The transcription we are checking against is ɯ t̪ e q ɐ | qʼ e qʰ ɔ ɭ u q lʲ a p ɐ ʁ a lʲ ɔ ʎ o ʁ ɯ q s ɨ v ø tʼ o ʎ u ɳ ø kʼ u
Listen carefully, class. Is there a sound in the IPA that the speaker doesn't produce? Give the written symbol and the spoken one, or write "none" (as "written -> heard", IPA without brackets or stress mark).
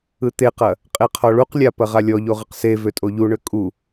ɨ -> e